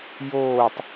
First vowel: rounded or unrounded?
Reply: rounded